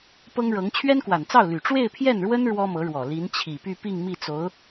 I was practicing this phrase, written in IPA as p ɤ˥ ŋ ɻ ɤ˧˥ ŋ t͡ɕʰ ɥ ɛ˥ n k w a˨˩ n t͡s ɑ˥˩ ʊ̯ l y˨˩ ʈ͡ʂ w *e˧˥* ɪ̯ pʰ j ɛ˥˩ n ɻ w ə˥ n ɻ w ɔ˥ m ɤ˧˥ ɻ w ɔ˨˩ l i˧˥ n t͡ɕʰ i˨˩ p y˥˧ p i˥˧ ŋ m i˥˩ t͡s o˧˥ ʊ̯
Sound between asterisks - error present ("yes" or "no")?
yes